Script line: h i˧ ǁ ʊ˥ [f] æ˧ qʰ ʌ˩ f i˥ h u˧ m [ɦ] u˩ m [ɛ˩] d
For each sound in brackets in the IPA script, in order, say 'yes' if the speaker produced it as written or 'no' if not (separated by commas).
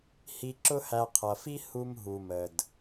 no, yes, no